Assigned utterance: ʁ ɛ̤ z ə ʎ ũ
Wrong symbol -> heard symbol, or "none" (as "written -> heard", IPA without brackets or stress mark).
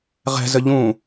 none